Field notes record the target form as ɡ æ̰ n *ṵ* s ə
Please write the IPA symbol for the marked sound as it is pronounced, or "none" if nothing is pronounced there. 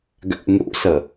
ṵ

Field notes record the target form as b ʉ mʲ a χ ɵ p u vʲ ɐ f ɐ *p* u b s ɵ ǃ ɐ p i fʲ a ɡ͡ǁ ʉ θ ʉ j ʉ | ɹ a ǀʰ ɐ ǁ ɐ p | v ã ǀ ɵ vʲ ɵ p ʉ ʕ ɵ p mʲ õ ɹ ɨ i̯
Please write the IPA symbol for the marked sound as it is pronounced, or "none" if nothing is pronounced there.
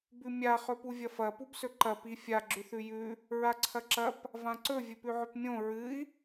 p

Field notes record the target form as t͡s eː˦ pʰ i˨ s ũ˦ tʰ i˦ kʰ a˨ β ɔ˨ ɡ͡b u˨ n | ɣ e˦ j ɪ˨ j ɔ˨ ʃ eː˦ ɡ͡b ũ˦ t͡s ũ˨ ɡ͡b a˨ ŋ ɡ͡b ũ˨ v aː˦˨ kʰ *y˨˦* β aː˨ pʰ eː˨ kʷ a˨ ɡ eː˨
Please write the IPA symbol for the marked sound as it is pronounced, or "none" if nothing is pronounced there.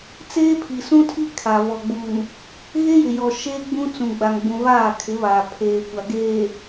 ɪ˨˦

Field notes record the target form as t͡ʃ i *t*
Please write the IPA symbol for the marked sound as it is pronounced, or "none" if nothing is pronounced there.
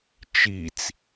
t͡s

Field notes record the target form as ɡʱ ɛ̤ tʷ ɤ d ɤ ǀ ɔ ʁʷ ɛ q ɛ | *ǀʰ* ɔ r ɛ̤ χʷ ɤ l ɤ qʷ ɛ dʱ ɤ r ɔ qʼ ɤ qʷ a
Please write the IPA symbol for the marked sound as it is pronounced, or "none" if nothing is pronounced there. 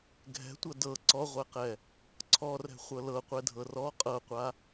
ǀʰ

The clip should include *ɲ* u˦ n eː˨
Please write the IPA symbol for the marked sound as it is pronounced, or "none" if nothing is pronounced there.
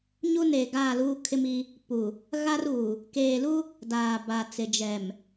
ɲ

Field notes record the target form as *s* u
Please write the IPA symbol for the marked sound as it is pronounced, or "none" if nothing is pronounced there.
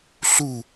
ɬ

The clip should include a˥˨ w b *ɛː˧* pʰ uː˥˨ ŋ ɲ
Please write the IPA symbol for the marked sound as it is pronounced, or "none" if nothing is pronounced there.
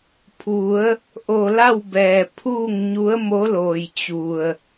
ɛː˩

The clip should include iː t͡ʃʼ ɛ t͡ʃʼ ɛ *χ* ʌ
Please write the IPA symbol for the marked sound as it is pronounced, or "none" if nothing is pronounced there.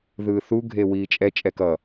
k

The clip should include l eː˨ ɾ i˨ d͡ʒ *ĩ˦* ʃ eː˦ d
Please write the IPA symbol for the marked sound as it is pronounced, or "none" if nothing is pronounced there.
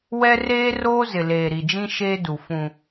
ĩ˦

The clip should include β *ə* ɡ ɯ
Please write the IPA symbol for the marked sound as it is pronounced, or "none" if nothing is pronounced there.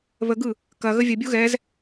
ə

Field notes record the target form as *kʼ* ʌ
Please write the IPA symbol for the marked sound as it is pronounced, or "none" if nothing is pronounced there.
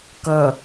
k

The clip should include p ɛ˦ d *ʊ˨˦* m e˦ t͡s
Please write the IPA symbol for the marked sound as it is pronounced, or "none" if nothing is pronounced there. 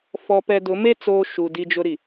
ʊ˨˦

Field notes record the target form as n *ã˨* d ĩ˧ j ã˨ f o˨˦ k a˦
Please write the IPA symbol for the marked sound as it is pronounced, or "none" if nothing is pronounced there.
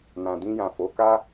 ã˨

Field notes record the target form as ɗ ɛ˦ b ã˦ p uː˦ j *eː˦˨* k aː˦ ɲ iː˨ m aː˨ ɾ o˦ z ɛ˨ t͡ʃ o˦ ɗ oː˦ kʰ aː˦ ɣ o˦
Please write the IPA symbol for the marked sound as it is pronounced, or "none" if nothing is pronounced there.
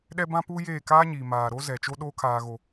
eː˦˨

